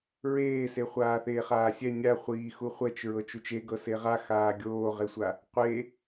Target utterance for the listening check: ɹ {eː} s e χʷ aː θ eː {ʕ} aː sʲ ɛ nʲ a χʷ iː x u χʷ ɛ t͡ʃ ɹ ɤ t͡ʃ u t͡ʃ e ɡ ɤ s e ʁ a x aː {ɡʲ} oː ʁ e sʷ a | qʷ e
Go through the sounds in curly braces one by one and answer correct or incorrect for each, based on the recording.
correct, incorrect: χ, correct

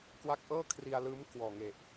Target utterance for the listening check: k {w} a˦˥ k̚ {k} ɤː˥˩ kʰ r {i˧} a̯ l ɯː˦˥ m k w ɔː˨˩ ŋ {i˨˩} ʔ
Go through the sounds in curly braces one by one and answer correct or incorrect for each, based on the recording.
correct, incorrect: ʔ, correct, incorrect: e˨˩

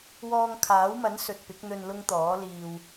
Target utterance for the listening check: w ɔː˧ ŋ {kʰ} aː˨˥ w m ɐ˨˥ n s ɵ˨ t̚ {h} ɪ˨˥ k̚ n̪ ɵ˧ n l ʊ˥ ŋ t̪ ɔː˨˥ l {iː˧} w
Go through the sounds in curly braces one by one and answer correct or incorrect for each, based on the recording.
correct, incorrect: p, correct

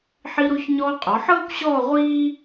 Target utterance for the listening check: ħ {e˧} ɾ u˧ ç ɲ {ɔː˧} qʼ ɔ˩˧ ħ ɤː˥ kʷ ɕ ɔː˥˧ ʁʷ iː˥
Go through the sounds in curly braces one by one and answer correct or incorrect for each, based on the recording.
incorrect: i˧, correct

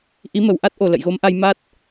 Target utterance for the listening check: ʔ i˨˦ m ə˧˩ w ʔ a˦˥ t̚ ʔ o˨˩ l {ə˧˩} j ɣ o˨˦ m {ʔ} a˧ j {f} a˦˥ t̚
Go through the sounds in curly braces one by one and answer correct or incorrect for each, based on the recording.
incorrect: ə̰˧˨, correct, incorrect: m

